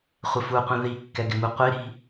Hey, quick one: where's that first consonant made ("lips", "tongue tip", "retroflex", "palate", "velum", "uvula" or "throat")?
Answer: uvula